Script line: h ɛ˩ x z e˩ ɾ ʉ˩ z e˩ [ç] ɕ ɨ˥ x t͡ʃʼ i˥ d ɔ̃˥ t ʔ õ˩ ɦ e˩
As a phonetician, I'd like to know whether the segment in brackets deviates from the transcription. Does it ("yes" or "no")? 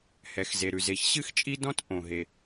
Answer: no